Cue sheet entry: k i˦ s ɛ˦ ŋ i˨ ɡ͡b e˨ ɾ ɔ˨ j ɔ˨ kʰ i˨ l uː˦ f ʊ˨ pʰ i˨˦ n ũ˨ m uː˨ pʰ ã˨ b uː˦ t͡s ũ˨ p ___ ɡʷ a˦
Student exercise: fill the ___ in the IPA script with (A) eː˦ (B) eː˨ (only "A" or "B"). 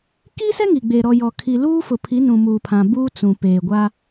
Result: B